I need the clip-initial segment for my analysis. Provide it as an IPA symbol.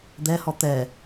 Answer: d̪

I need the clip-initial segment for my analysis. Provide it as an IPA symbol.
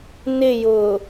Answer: n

